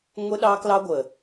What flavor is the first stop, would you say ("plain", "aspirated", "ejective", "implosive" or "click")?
implosive